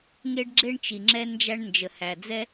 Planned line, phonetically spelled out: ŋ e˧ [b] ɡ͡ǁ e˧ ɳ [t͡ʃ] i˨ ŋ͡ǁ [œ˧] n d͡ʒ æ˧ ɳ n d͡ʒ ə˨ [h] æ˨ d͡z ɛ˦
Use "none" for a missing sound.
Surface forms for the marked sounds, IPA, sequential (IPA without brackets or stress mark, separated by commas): ɖ, t͡ʃ, ɛ˧, h